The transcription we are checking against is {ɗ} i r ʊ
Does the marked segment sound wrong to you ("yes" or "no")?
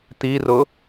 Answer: yes